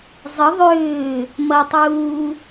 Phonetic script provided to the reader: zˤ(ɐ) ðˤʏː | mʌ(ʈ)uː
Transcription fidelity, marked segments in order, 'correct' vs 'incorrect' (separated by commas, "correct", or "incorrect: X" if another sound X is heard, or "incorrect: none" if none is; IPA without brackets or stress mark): incorrect: ə, incorrect: tˤ